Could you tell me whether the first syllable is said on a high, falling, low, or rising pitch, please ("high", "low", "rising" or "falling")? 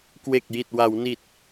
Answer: low